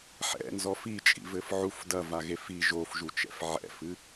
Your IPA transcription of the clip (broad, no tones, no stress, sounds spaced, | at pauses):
ħ ɛ̰ n z ɔ f i t͡ʃʼ ḭ v ɘ f ʕ u f d ɐ v a ɣ e f i ʒ o f ʒ u t͡ʃ ɛ̰ f ʕ ɛ̰ f ɨ